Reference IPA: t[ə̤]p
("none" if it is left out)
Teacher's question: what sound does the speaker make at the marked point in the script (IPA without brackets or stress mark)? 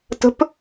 ə̤